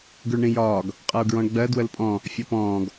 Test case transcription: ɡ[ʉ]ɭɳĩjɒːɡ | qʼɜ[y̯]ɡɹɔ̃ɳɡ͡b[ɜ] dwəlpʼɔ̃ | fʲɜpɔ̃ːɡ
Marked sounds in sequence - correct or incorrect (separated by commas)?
correct, incorrect, correct